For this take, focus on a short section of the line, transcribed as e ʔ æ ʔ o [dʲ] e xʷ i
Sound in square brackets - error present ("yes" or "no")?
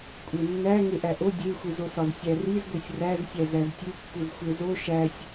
no